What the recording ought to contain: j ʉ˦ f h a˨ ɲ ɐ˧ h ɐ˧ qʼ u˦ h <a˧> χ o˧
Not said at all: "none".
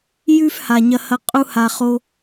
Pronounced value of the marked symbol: a˧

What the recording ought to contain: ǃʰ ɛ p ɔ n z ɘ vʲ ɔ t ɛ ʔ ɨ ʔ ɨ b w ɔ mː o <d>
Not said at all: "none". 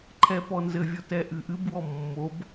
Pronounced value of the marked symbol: b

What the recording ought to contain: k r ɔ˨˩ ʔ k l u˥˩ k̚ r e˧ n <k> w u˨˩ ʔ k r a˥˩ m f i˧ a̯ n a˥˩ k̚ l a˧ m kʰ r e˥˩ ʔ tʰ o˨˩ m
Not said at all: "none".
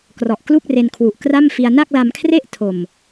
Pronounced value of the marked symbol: kʰ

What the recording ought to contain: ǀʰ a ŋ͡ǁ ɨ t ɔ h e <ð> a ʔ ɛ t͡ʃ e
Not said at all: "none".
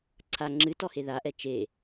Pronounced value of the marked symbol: ð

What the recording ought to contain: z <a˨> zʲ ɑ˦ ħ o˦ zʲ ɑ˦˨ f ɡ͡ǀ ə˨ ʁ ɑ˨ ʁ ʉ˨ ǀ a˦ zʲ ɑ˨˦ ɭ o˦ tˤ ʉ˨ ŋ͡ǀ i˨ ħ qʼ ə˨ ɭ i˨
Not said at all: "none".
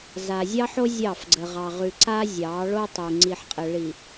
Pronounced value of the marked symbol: a˨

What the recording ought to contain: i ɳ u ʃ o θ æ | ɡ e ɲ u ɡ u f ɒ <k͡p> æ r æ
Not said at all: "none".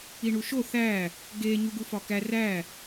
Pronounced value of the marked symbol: k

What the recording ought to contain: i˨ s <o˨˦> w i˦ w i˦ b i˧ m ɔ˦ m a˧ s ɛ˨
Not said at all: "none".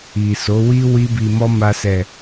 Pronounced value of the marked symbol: o˨˦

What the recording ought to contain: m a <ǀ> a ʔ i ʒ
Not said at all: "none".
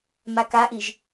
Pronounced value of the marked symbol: k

